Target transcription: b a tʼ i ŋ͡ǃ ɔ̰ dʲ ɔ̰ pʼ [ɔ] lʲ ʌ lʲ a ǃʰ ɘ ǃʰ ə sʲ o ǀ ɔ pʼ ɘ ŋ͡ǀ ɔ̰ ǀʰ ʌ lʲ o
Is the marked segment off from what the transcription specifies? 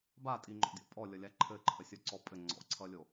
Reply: no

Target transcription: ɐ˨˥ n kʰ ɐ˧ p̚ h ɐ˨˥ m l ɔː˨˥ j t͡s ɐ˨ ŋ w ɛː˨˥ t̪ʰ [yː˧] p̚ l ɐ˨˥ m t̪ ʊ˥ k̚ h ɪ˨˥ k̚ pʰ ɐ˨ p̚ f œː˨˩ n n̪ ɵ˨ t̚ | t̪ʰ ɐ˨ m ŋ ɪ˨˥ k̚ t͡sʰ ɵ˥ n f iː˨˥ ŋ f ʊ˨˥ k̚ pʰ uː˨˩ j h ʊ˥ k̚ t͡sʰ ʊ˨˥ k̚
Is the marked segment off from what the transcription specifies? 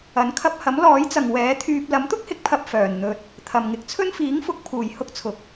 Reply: no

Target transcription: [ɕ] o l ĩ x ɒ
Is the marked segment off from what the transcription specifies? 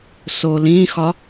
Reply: yes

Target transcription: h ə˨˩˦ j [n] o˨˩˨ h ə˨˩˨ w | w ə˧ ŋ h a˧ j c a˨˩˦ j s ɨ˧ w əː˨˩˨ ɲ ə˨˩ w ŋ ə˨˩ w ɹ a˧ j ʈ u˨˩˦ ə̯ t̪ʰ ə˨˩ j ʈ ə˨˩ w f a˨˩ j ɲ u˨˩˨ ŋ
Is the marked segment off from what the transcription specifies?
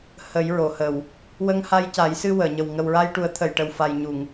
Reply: yes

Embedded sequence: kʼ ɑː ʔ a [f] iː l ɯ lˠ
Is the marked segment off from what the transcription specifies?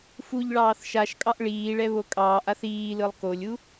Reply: yes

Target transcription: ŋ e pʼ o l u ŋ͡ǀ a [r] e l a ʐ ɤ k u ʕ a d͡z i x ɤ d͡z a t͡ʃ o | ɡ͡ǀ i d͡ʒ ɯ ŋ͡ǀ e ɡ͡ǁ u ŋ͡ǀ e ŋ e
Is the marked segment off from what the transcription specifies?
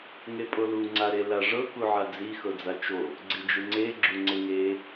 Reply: yes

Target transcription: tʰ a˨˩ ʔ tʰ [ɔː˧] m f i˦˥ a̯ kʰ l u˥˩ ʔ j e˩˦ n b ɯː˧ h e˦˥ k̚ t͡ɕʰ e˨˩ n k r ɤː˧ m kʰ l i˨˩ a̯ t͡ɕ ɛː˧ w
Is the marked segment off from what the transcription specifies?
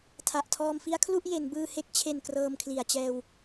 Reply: no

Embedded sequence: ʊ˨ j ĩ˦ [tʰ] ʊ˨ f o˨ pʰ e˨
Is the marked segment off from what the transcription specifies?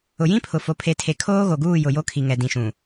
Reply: yes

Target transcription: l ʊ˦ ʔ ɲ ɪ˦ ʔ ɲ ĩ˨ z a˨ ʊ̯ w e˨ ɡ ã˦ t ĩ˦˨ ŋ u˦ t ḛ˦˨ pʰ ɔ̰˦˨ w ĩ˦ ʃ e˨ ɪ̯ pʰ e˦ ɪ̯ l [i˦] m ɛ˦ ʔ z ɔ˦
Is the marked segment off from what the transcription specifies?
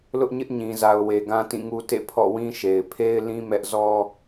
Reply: yes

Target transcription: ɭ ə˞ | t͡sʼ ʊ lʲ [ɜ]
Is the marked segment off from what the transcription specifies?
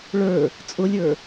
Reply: yes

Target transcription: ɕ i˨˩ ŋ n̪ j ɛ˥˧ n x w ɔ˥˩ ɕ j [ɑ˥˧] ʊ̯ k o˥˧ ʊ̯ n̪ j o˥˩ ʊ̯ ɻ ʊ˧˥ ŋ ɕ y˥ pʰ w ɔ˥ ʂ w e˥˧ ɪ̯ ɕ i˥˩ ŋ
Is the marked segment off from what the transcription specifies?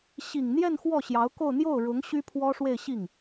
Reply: yes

